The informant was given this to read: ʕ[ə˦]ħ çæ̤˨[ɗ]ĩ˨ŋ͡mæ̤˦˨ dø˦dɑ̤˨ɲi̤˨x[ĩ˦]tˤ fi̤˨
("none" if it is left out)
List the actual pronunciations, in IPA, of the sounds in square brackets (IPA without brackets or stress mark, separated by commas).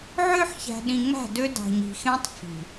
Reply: ø˦, ɗ, ẽ˦